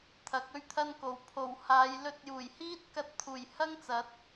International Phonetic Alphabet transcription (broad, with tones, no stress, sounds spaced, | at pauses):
t̪ʰ ɐ˨˥ k̚ ɵ˥ ɥ t̪ʰ ɐ˥ n k o˨ w pʰ o˨˩ w h aː˨˧ j l ɵ˧ t̚ j uː˨˩ j h iː˥ t̚ k ɐ˧ t̚ t̪ʰ uː˨˩ j h ɐ˥ ŋ t͡s ɐ˨˥ t̚